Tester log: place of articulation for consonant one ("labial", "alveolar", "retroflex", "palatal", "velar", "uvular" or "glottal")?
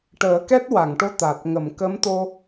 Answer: retroflex